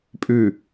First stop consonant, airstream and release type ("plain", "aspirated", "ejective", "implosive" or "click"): ejective